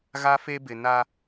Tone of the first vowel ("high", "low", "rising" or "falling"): high